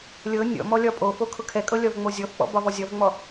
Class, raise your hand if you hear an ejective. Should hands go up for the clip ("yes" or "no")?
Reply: yes